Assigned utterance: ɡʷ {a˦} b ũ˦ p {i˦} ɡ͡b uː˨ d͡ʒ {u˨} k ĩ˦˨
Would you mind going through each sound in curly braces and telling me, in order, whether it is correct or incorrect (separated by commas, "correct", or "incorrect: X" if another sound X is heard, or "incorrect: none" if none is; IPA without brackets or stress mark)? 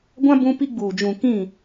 incorrect: ã˦, correct, incorrect: ũ˨